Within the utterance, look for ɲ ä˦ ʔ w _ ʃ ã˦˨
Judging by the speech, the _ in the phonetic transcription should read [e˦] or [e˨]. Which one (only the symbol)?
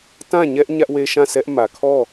e˦